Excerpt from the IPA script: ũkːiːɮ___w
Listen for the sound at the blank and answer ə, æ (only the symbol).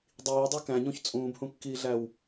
æ